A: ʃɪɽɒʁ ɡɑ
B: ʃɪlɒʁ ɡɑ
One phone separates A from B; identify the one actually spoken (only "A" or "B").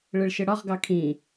A